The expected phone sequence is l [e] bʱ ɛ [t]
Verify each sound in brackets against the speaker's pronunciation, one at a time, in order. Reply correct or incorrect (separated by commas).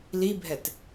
incorrect, correct